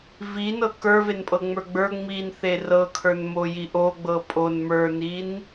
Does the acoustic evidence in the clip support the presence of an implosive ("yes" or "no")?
no